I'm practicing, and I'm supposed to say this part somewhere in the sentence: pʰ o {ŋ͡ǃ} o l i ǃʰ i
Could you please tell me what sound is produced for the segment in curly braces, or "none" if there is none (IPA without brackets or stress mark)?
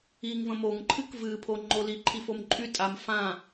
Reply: ŋ͡ǃ